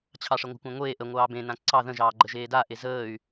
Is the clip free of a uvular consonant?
yes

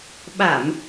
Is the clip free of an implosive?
no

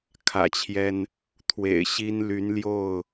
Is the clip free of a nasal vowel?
yes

